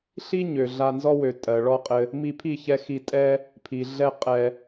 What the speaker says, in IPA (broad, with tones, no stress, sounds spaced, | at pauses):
ɬ i˦ ɲ ø˨ ɮ a˧ n z ɔ˦ w ø˨ tʼ ɜ˨ ɭ ɔ˦ qʼ ɘ˧ | m i˧ pʰ i˦˨ ç ɛ˧ x i˧ tʼ ɛ˦ | pʰ i˨ ɮ ɛ˦ qʼ ɛ˧